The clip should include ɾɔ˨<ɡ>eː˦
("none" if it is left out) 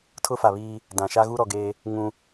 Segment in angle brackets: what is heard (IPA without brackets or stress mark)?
ɡ